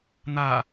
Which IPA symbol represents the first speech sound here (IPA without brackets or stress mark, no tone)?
n̪